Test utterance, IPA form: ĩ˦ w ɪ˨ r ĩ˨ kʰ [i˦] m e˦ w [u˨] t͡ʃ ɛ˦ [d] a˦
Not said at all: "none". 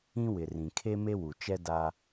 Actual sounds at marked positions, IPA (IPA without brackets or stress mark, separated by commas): e˦, u˨, d